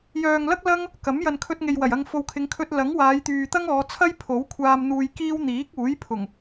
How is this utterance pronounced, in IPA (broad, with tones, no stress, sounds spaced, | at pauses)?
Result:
j œː˨ ŋ l ɐ˥ k̚ l ɐ˥ ŋ | k ɐ˨˥ m j ɐ˨ n kʰ ɵ˧ t̚ ŋ e˨ j w ɐ˨˩ j ɐ˧ ŋ f o˨ w kʰ ɪ˨˧ ŋ kʰ ɵ˧ t̚ l ɐ˨˥ ŋ w aː˨˧ j t̪ yː˨ t̪ ɐ˥ ŋ ɔː˨˧ t͡sʰ ɐ˥ j pʰ o˨˥ w kʷʰ aː˧ m n̪ uː˧ j k iː˥ w n̪ iː˨˥ k̚ uː˨˥ j pʰ ʊ˨˩ ŋ